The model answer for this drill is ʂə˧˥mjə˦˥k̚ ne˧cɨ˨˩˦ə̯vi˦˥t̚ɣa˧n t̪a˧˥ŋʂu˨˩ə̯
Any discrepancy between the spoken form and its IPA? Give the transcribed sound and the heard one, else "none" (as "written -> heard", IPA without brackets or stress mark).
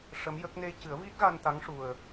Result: none